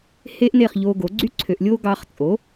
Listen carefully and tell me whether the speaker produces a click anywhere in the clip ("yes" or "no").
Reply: yes